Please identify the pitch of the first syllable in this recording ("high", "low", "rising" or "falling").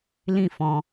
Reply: falling